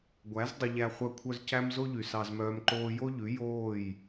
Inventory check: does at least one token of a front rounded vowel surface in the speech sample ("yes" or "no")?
yes